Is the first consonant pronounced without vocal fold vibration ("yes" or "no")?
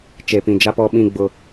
yes